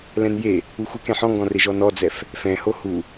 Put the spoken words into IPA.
lɛ̃nje | uxʷek ɛ̃ħɔ̃ŋɡɔ̃re ʒɔnɔd͡zɛf | fɛ̃ho hu

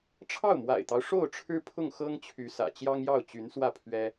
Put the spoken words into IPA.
ʈ͡ʂʰɑ˥˩ʊ̯mwa̰˨˩ɪ̯t̪ɑ˦ʊ̯ ʂo˥˩ʊ̯ʈ͡ʂʰɻ̩˥ pʰʊ˥˩ŋxɤ˥ŋt͡ɕʰy˧˥ sä̰˨˩ t͡ɕjɑ˥ŋjɑ˥˩ʊ̯ t͡ɕy˧˥nswä˥˩ pʰɥɛ˥

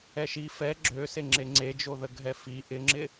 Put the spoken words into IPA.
ɛʃi fɛ ɡ͡ǁøse ŋ͡ǁeŋ͡ǀed͡ʒo ðəɡʱɛfi ʔɪŋ͡ǁɪ

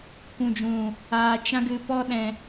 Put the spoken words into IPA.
kʷũ˨d͡ʒũ˨ | aː˨ t͡ʃã˧ɡɨ˨pɔ˧ɗɛ̃˨

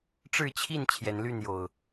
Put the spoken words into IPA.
ʈ͡ʂɻ̩˥˨t͡ɕʰi˥˨n t͡ɕʰjɛ˨˦nly˥˨njo˨˩ʊ̯

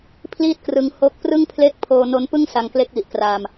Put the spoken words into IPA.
pʰliː˥˩t̚krɯ˧ŋho˦˥k̚prɯ˥˩ŋ pʰle˥˩k̚ pʰoː˧no˦˥npɯ˥˩ŋ sa˧ŋkle˦˥k̚wi˨˩ʔkraː˧m

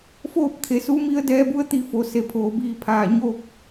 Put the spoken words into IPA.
foː˥˨p̚t̪ʰe˩˧su˧˥mi˧˥ə̯ dɛː˧˥bu˧˥ə̯ t̪i˧fo˩˧se˩˧pʰoː˩˧ biː˧ pʰaː˧˩ ɲoː˥˨k̚

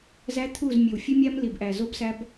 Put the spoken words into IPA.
zæ˦t̪ʰu˦˨z mʲe˨wfʲe˦mʲæ˦m li˨bʔæ˨ zo˦bsæ˦b

